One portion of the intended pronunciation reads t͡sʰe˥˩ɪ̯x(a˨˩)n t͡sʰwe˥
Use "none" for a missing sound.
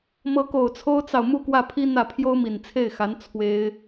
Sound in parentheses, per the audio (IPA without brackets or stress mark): a˧˥